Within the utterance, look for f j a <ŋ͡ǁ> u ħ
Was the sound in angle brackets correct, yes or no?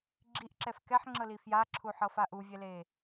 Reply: no